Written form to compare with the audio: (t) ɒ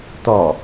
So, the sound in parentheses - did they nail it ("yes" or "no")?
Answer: yes